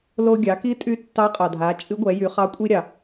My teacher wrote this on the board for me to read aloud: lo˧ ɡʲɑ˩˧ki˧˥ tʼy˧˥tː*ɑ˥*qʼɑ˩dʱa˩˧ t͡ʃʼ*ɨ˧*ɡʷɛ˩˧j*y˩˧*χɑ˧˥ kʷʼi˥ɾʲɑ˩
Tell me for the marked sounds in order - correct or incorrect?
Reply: incorrect, incorrect, correct

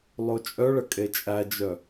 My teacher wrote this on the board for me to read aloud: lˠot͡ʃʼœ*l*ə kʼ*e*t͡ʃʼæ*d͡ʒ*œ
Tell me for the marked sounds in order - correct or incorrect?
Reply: incorrect, correct, correct

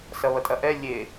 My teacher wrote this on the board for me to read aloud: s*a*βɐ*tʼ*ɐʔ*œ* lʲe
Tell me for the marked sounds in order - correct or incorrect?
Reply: incorrect, correct, incorrect

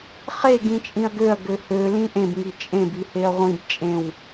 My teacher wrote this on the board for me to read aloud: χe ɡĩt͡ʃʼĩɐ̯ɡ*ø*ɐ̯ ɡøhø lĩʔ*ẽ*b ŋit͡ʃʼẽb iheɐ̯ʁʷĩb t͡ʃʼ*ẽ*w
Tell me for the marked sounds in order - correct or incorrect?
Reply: correct, correct, correct

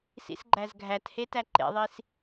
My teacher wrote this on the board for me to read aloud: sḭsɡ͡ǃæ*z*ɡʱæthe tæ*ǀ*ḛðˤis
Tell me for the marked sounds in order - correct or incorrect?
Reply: correct, incorrect

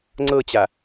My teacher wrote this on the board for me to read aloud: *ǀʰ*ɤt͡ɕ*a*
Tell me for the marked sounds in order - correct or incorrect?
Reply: incorrect, correct

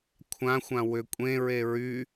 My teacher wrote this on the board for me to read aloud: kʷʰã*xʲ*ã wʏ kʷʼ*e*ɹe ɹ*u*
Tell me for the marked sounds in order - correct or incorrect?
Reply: incorrect, incorrect, incorrect

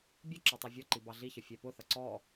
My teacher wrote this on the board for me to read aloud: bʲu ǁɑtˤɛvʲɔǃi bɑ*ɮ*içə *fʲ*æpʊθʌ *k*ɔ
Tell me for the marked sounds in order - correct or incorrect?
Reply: correct, correct, incorrect

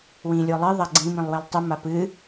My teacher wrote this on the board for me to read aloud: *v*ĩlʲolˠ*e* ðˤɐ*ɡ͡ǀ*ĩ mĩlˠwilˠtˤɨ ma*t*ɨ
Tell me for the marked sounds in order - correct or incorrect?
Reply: incorrect, incorrect, correct, incorrect

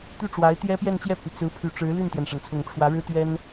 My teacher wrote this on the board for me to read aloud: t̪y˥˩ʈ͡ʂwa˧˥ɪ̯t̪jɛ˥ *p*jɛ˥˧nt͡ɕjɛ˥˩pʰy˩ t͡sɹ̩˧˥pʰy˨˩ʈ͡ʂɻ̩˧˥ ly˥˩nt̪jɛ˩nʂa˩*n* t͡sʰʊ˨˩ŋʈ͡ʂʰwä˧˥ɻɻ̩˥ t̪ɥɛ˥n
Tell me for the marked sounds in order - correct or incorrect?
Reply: correct, correct

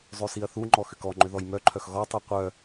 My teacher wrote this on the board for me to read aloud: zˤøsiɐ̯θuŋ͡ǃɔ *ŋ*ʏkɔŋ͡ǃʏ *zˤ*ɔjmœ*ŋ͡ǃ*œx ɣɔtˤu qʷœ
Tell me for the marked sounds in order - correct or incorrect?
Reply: incorrect, incorrect, incorrect

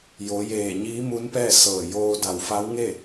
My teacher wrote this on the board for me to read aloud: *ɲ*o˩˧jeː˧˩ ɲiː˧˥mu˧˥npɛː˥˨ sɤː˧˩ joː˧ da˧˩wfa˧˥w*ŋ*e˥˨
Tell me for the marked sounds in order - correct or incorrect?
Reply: incorrect, correct

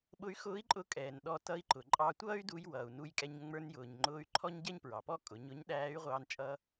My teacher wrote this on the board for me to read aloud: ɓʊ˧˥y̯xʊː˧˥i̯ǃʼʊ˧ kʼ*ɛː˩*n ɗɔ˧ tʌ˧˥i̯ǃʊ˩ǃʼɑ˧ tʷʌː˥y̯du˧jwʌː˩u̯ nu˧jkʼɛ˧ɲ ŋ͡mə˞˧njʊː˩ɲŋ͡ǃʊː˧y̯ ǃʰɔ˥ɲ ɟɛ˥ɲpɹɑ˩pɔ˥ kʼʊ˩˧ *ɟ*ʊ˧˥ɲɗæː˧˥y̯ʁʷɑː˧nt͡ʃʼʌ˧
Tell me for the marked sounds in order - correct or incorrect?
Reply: correct, incorrect

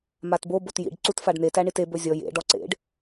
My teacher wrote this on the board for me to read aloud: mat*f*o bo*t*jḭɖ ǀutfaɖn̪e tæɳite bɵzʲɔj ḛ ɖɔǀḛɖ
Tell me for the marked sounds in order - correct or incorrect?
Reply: incorrect, correct

